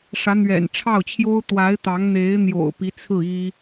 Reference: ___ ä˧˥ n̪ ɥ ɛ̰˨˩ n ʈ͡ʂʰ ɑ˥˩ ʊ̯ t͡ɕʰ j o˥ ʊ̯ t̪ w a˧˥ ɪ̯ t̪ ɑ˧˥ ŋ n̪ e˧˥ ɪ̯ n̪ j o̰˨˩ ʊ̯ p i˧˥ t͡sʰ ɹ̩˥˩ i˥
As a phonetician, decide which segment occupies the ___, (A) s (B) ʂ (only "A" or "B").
B